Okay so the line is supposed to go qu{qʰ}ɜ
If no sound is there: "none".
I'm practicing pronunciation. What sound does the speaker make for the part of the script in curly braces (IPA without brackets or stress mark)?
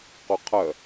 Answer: qʰ